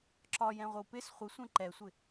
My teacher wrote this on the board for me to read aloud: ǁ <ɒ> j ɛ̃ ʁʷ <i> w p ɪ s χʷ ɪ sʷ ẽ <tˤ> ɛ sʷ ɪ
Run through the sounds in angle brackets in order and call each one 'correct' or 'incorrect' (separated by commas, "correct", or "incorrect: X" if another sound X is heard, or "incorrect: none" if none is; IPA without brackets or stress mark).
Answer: correct, incorrect: ɪ, incorrect: ǃ